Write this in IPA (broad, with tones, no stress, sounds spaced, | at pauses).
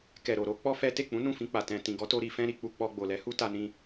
k ɛ˨ ɾ o˨ ɾ o˨˦ k͡p ɔ˦ f ɛ˦ t e˦˨ k͡p ũ˨˦ n ũ˦˨ f ĩ˧ k͡p a˨ t ɛ̃˨ t ĩ˨ ɡ ɔ˨˦ t o˧ ɾ i˧ f ɛ̃˦ ɾ i˧ k͡p u˧ k͡p ɔ˧ ɡ͡b o˨ l ɛ˨˦ h u˦ t a˧ n ĩ˧